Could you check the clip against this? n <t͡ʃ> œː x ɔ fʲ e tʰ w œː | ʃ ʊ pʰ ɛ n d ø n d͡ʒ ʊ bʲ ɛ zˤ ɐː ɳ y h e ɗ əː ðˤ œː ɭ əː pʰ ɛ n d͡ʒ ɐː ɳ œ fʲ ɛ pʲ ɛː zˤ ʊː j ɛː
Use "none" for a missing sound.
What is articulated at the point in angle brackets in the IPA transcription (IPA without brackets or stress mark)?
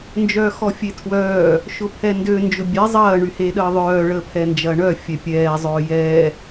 d͡ʒ